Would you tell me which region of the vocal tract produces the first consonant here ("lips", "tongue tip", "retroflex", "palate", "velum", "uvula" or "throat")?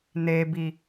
tongue tip